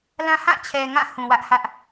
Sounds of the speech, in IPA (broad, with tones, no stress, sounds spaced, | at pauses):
l ã˦ h ã˦˨ t͡ɕʰ ɛ˨ ŋ ã˦˨ h ũ˨ w ä˦ ʔ h ä˦ ʔ